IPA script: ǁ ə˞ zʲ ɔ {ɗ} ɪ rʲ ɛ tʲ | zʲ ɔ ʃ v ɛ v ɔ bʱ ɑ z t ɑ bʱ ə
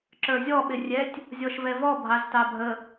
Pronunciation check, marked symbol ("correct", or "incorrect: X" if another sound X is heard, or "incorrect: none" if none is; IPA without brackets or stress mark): incorrect: ɓ